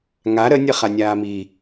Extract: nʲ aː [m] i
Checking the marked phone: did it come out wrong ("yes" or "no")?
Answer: no